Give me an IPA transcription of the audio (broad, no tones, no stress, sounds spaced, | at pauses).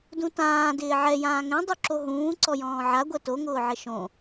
d ũ t ãː d ɪː ʕ ɛ j ãː ŋ ɛ̃ dˤ u ǁ o ɦ ũː ǀ ɔ j ɔ̃ː ʕ a ɡʷ ɛ t o ŋ ʊː ʕ ɪ ʃ õ